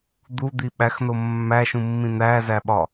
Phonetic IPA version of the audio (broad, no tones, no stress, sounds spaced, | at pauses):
d̪ u d̪ i ɓ æ x n o mː æ ʃ ũ mː ĩ n̪ æ z æ ɓ ɒ